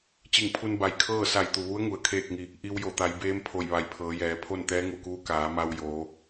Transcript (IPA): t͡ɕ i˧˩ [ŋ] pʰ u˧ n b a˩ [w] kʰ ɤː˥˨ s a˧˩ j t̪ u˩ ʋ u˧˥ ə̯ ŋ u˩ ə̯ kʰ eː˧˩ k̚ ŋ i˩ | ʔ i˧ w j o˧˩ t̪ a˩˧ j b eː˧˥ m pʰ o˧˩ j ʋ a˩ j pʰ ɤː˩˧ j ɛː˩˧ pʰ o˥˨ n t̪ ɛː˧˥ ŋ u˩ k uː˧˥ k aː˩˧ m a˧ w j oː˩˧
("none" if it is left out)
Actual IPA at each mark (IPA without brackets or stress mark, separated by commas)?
ŋ, j